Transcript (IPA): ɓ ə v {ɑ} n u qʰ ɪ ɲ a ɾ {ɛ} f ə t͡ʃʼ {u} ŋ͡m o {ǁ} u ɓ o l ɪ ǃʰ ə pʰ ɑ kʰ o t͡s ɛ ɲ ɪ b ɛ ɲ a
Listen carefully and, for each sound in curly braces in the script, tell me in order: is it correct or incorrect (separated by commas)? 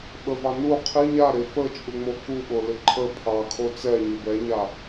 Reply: correct, incorrect, correct, incorrect